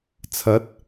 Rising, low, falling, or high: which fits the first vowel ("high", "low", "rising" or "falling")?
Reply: rising